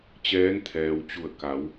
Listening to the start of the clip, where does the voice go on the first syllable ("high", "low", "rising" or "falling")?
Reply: rising